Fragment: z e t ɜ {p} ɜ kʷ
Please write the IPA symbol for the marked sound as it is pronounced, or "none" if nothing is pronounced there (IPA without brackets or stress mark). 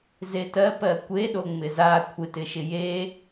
p